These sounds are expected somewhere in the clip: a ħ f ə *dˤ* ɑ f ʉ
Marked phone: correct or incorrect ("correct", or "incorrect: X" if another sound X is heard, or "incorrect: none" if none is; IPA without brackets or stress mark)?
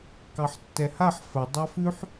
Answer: correct